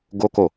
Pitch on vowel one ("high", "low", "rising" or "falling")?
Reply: high